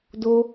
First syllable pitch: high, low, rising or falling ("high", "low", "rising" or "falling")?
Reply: high